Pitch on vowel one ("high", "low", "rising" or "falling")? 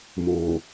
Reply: low